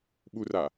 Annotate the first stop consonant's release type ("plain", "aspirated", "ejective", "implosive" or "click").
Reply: implosive